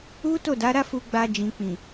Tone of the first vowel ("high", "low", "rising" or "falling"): high